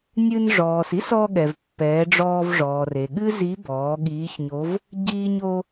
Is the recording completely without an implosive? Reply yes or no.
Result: no